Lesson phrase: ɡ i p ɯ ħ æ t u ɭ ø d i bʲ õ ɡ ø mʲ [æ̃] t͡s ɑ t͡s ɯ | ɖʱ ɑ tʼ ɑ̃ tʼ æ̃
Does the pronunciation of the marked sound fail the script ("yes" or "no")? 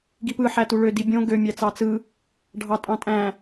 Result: yes